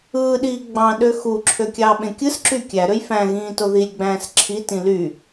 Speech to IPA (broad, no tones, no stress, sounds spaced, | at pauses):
ɯː ɗ iː ɡ͡b ɑ̃ ɗ ø x u ǁʰ ø kʲ ɑː ɓ ẽ kʲ ɯ s ǁ y kʲ æ ɾ ø j f æ̃ ɣ ĩː t o ð i lʲ ɡ͡b æ̃ː s ǁʰ i t ĩ l y